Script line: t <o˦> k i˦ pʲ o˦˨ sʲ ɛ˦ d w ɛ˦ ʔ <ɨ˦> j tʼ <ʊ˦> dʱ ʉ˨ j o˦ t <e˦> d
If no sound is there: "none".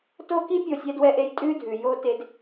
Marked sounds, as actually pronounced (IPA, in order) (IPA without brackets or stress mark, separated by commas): o˦, e˦, ʉ˦, e˦